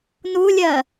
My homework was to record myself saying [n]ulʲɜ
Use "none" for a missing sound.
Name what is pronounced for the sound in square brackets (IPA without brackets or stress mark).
n